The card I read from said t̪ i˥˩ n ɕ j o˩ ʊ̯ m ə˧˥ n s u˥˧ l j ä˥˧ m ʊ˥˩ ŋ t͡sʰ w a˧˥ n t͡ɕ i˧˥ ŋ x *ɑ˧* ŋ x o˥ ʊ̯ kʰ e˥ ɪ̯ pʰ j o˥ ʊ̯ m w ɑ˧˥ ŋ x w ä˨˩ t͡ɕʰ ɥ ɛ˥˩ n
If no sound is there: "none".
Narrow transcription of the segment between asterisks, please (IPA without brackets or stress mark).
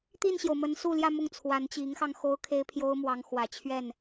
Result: ɑ˧